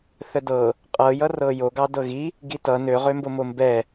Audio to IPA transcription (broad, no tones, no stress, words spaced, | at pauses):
θədɤ | qʼɤ jʌrɤjo ɡɑdɤɣi | ɡitʌ nøʁømbomo mbɛ